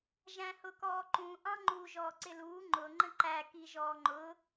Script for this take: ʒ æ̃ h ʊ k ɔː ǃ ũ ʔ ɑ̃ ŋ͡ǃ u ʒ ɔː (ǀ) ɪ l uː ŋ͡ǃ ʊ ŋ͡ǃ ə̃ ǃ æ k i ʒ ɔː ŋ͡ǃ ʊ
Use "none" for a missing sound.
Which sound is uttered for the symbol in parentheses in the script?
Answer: ǀ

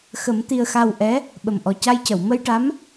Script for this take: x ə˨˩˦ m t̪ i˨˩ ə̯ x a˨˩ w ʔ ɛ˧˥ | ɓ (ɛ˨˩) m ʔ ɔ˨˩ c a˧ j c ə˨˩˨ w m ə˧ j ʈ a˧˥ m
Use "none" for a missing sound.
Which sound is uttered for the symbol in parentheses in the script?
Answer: ə˨˩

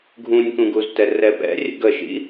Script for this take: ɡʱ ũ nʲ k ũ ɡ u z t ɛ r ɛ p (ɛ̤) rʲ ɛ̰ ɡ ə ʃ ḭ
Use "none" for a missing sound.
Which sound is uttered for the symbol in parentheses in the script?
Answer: ɛ̰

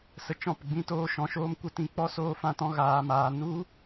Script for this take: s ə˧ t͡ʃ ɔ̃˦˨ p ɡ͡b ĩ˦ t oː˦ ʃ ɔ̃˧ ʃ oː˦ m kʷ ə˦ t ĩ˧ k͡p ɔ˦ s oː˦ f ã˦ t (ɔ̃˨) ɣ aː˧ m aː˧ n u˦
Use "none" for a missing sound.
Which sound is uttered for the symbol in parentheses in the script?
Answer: ɔ̃˦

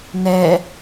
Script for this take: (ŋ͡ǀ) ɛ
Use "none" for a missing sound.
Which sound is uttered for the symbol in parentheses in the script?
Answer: n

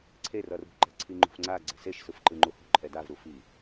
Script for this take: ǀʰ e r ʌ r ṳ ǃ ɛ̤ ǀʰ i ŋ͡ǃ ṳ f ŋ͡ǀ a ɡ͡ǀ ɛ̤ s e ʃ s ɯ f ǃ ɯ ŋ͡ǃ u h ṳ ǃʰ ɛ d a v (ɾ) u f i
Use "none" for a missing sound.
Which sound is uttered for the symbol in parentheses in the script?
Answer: ɾ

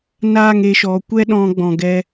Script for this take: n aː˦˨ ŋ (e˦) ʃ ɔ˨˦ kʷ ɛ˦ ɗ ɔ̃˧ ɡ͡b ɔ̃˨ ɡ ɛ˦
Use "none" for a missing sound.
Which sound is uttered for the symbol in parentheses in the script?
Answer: e˧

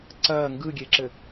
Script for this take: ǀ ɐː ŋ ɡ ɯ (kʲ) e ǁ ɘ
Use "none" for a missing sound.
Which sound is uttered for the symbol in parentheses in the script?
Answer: ɡʲ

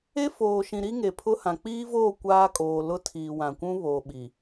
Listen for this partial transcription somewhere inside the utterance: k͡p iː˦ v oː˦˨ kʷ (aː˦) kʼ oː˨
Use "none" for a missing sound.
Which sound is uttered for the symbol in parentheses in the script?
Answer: aː˦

